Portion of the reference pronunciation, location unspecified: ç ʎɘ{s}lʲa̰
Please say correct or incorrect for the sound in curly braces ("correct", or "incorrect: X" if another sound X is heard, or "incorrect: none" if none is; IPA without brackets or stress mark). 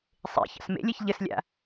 correct